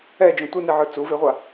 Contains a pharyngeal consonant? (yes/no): yes